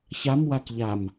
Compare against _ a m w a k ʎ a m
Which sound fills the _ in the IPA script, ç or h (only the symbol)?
ç